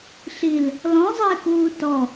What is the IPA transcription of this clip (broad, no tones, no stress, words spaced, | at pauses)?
ɬil | lɔ̃zˤɪːkuː tɔ